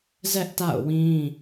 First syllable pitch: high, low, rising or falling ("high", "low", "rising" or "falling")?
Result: high